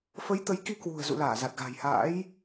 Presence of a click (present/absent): absent